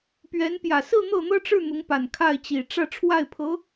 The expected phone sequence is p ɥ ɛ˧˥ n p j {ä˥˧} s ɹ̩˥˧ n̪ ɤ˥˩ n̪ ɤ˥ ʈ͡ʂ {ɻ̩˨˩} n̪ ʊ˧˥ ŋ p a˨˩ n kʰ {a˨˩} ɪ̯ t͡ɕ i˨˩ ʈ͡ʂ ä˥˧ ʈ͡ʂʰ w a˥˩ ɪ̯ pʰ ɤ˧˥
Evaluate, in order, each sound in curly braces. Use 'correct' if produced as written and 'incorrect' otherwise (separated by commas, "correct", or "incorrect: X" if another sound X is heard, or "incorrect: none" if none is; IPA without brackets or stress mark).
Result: incorrect: ä˨˩, incorrect: ɻ̩˥˩, incorrect: a˥˩